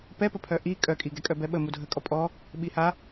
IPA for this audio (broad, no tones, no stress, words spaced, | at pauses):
pɛpəpʰœ ʔi kʼœkʼi ɡɛkʼœbɛɓə mudʱəkʼɔ pʼɔ | ɓiha